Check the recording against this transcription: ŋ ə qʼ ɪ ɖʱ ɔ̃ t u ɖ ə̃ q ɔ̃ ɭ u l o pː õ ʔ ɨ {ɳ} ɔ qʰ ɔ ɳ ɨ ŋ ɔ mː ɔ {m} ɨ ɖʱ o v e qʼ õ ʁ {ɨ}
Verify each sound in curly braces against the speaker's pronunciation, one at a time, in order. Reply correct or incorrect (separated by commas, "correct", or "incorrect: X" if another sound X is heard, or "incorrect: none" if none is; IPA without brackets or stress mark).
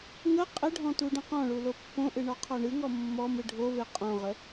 correct, correct, incorrect: ə